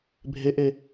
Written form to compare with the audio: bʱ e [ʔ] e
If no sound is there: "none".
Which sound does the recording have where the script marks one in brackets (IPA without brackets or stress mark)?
ʔ